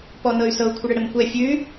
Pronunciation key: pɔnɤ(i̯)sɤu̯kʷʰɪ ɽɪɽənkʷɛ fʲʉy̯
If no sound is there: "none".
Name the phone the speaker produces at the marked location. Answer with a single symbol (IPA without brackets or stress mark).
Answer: y̯